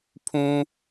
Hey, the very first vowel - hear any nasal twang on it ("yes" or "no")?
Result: yes